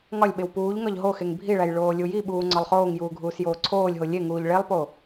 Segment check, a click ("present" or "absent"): present